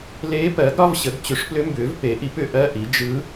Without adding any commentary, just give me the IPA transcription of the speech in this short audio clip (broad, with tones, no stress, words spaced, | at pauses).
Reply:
leː˧˥pɜ˩˥ɡ ɾɒ˧˥˧vɕə˩˥ɡ t͡ɕʏ˩˥ʂplʏ˧˥ mbʏː˩˥vpe˩˥ʔi˩˥p ʏ˩˥ʔɜ˧˥˧ʔi˩˥ d͡ʒɯ˧˥